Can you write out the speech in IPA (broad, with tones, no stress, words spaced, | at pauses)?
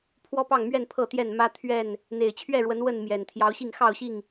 pʰwɔ˦pɑ˥˨ŋmɥɛ˥˨n pʰɤ˥˨t̪jɛ˥˨n mä˦t̪ʰɥɛ˥˨n | n̪e˨˩ɪ̯t͡ɕʰɥɛ˥˨ɻwə˨˦n wə˥˨nmjɛ˨˩n t̪ʰjɑ˨˦ʊ̯ɕi˥˨ŋ xɑ˥˨ʊ̯ɕi˥˨ŋ